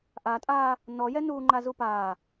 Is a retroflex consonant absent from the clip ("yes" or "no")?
yes